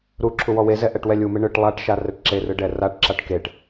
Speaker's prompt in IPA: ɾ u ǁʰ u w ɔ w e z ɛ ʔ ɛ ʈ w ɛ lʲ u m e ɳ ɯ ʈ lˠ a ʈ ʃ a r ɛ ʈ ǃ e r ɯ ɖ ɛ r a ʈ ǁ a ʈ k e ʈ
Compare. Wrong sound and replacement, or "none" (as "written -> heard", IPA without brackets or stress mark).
ǃ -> ǁ